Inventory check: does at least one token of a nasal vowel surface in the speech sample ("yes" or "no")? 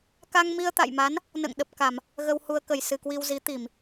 no